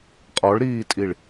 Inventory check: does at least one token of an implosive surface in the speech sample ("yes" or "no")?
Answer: no